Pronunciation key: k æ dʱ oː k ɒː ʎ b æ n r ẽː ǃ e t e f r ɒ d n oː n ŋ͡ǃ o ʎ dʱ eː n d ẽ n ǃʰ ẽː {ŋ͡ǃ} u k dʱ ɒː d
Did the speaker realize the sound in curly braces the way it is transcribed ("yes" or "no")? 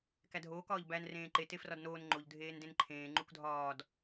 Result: yes